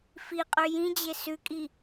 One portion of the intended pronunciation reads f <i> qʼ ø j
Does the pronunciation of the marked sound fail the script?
no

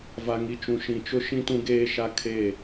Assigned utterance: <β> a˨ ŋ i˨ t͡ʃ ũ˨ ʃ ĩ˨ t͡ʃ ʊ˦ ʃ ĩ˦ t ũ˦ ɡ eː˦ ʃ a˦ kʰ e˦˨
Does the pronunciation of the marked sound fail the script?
yes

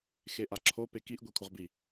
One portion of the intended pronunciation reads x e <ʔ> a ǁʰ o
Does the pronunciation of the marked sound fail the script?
no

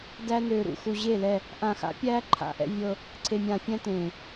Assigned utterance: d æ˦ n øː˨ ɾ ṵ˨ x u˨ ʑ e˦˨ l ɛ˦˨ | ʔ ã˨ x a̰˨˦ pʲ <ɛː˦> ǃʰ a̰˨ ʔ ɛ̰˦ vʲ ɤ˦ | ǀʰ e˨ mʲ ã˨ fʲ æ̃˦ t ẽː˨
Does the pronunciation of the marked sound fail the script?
yes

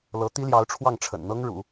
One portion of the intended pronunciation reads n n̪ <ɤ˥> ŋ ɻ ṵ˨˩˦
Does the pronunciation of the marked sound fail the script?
no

